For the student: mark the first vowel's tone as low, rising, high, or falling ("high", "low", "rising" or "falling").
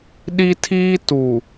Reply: high